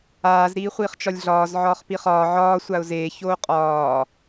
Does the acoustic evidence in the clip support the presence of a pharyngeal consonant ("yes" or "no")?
yes